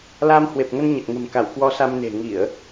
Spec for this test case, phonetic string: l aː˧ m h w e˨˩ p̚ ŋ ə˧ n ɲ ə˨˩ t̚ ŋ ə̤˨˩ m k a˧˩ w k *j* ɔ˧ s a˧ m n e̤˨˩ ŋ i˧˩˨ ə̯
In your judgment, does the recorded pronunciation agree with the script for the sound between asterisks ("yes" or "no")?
no